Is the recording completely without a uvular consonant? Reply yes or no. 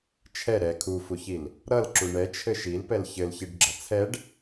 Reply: yes